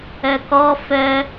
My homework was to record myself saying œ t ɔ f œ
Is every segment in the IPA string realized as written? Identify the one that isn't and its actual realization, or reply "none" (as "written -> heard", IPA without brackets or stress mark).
t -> k